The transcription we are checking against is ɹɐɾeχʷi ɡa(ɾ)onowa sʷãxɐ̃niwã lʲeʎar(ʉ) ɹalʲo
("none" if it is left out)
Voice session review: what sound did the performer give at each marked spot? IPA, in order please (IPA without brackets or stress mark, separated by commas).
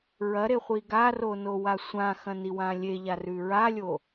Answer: r, ʉ